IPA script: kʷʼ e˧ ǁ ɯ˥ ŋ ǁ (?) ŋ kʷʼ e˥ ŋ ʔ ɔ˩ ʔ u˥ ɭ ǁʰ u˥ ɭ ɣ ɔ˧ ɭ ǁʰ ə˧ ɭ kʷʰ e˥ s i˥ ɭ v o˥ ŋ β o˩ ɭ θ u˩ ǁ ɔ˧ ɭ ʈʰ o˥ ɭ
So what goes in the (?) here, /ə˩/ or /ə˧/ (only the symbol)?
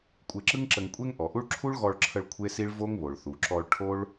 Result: ə˧